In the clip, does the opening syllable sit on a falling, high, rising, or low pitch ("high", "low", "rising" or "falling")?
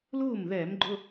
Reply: falling